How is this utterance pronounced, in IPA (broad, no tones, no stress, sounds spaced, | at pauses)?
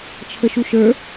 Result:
t͡ʃʰ ə ʃ u ʃ ə˞